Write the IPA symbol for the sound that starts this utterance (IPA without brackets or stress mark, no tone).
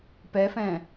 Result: p